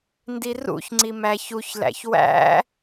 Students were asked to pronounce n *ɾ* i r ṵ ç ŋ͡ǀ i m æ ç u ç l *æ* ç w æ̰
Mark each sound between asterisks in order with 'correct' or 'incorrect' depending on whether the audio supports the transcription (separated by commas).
incorrect, incorrect